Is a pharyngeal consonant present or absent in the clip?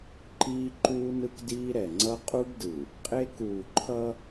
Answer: absent